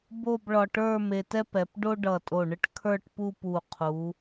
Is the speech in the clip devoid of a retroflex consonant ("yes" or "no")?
no